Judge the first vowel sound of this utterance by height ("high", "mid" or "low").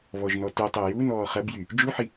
mid